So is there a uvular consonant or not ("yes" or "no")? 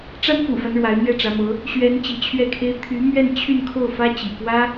no